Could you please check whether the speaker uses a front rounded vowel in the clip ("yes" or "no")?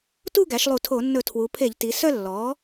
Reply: yes